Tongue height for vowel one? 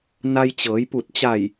low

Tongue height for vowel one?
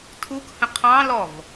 high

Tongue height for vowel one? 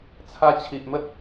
low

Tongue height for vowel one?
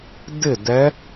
high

